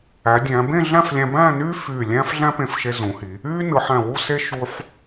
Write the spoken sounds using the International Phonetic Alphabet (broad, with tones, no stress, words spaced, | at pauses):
æ˩˧dʲæ̃˩˧bẽ˥˧ɮæ̃˥˧f lʲæ̃˧bæ̃ː˥˧ nyː˥fyː˧˩ lʲæ̃ː˥fɮæ̃˥pẽ˧˩fʃe˧ zũ˩˧hi˩˧ | yː˥ nɯ˩˧ħæ̃˧˩wu˥˧se˥ ʃu˧ħ